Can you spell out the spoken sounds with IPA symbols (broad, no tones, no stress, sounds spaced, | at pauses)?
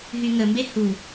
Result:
ɦ y ŋ ə m b e h u